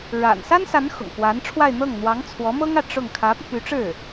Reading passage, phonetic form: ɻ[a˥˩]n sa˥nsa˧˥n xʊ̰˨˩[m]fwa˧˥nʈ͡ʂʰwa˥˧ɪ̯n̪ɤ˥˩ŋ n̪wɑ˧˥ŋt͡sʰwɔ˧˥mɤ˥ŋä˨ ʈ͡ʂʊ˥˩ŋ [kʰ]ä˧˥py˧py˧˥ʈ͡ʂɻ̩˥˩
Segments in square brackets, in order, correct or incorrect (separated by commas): incorrect, incorrect, correct